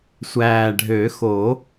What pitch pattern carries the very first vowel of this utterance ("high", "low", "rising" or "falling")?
low